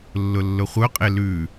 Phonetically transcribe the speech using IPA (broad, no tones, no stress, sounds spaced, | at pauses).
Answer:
lː ʊ lː ʊ χʷ œ qʼ e l ʉ